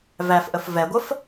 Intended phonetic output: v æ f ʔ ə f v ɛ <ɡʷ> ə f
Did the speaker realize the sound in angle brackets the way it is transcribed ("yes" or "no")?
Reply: yes